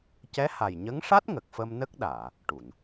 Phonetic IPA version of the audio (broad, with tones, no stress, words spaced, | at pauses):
cɛ˧˥ha˨˩jɲə˧˥ŋʂa˦˥t̚ ŋə˨˩k̚fə˧mnə˦˥k̚ɗaː˨˩˨ | ʈu˨˩˨n